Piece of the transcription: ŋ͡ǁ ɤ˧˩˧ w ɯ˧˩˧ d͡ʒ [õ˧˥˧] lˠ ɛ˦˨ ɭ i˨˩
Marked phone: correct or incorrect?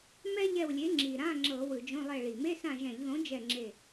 correct